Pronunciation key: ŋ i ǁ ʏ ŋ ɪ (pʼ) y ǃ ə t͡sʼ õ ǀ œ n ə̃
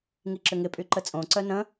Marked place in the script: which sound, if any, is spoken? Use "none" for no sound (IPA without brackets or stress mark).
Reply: pʼ